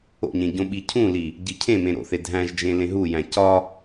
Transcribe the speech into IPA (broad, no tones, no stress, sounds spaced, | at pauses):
o̰ ɲ ẽ ɟ õ ɓ i cʰ ũ l i | ɟ i cʰ ẽ m ẽ ɾ o̰ θ e dʱ æ̃ ʒ d͡ʒ ẽ l ẽ ɦ u j æ̃ c ɒ